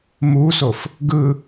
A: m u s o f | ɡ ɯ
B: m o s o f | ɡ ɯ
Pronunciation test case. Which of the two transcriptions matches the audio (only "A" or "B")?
A